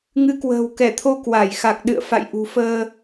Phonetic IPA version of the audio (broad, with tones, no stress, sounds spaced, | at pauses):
ŋ ɨ˨˦ k w ə̤ː˨˩ w k ɛ˧˩ t̪ʰ o˧ k w a˧˩ j x a˨˩ k̚ ɗ ɨ̰˧˨ ə̯ f a̰˧˨ j ʔ ṳ˨˩ f əː˧